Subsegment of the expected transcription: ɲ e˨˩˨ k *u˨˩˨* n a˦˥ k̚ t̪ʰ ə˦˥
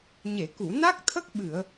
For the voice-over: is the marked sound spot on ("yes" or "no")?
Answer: yes